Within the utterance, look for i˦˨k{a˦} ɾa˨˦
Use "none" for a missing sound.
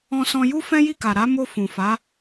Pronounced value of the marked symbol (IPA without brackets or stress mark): a˨